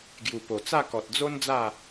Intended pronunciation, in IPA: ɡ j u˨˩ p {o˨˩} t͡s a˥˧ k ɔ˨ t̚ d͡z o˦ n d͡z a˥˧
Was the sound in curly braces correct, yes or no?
yes